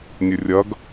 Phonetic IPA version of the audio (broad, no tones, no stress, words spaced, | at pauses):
nʲɵrʲɐɡ